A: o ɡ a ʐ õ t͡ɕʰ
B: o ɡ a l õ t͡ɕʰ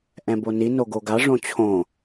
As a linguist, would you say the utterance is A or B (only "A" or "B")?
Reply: A